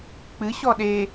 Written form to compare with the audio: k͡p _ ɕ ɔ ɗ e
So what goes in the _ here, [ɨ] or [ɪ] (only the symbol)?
ɨ